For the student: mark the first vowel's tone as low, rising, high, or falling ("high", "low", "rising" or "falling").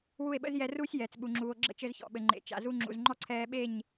falling